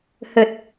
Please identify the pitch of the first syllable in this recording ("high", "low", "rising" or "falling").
low